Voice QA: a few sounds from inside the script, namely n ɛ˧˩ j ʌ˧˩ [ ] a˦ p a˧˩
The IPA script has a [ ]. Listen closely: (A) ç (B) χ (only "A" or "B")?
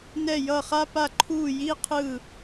B